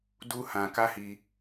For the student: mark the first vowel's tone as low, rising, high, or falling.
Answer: high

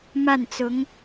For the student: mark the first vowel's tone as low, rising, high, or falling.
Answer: falling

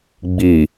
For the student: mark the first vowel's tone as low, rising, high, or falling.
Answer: low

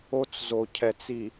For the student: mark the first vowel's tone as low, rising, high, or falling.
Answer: high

